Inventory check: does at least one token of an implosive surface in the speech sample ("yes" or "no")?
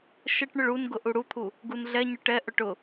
no